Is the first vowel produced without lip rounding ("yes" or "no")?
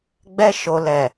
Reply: yes